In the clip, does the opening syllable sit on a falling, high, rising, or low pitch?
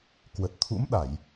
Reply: low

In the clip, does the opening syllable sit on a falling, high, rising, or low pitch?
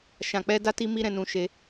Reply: low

